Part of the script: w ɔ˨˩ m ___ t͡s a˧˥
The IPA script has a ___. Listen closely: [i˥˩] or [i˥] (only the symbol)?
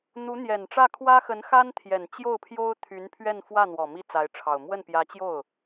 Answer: i˥˩